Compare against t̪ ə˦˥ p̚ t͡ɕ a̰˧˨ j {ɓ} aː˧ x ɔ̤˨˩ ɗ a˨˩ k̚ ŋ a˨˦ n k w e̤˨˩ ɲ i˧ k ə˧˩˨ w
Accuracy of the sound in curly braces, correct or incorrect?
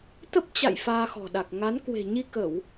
incorrect